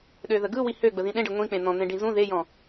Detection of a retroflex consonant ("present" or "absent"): present